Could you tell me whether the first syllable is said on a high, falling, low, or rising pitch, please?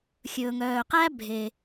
low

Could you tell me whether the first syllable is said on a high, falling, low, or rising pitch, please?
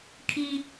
high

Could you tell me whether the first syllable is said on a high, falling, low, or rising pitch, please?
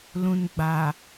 low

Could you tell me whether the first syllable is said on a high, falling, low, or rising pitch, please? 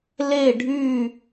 falling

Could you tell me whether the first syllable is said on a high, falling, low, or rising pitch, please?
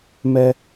high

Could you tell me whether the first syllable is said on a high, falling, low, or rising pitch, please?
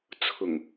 low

